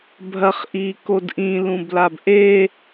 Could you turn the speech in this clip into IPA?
bʱ ɐ χ ʔ iː k o d ʔ ĩ l ũ b l a b ʔ e

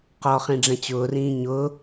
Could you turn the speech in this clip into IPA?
q ɔ χ ĩ ɖ͡ʐ ɛ̃ t͡ɕ ʊː r ĩː ɲ ʊː

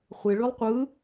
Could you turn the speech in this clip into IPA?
χʷ e ɭ y lˠ qʷ ɯ

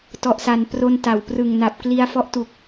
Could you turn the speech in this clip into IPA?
t ɔ˨˩ ʔ s a˨˩ n p r o˧ n t a˩˦ w p r ɯ˨˩ ŋ n a˨˩ p̚ k l i˧ a̯ f ɔ˦˥ ʔ t u˨˩ k̚

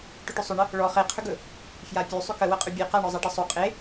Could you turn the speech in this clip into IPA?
ʈ ɵ ʈ ʏ sˤ ʏ ɳ ə | ɭ ɔ χ e qʰ ʏ ɡ ɵ | f j a pʲ ʉ sˤ ʏ k ə w ə qʼ ʏ bʲ e q a ɳ ɔ zˤ a ʈ ə sˤ o qʼ e

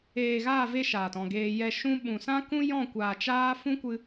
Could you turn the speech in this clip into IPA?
eː˨ ɣ aː˦˨ v e˧ ʃ aː˨ t ɔ̃˦˨ ɡ eː˧ j ɛ˨ ʃ ũ˦ ɓ ũ˨ s ã˦ k ũ˦ j ɔ̃˦˨ kʷ aː˨ t͡ʃ aː˦ f ũ˦ kʷ ɨ˧

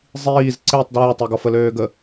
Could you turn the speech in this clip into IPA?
zˤ iː z ǀ e tˤ d ɹ ə˞ tˤ e ɡ ɔ f ə l øː ɡ ə

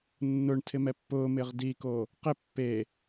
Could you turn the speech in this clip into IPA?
nː ʊ ɳ tʰ ɪ m ɛ pː ʊː m ɪː ʁ d i k o | q ɪ pː e

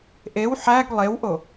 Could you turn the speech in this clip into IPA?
ʔ e w ħ æ ɡ lˠ e w ʔ o

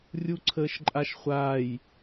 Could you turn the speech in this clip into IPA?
rʲ u ǀʰ əː ʃ ǃʼ a ʃ χʷ aː j

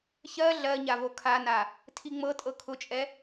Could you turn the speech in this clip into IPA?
ç ɜ ɮ ɜ ɲ a v o kʰ a n a | tʰ i ŋ͡m ɤ tʼ ɤ kʰ ʊ t͡ʃʼ ɛ

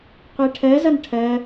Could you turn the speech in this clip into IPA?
qʷ ɛ ʈʰ ɜ z ʌ n ʈʰ ɜ

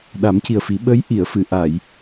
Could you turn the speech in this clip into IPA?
ɗ a˨˩˦ m c i˨˩ ə̯ f i˨˩˦ ɓ ə˧˥ j ʔ i˨˩˨ ə̯ f ɨ˨˩˨ ʔ a˨˩˨ j

